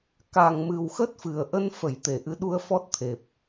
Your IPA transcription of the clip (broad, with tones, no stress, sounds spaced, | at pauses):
k a˨˩ ŋ m ɨ˨˩ w x ə˦˥ t̚ f ɨ˨˩ ə̯ ʔ ə˧ n f ə˧˩ j t̪ e˧˩ ʔ ɨ˨˦ ɗ u˧ ə̯ f ɔ˦˥ t̚ t̪ʰ e˨˩ p̚